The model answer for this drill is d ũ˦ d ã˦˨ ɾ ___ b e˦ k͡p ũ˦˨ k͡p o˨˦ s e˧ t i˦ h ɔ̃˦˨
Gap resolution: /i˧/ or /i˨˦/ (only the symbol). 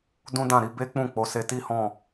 i˧